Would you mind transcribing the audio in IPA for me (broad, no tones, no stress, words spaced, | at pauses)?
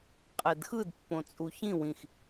qʼɛdxɯd pːõt͡sʼuçĩ wĩx